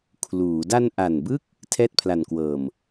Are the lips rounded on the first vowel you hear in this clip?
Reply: yes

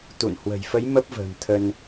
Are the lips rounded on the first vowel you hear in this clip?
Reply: yes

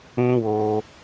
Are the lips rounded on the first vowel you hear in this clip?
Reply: yes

